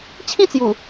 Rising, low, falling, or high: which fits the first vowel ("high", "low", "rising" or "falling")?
falling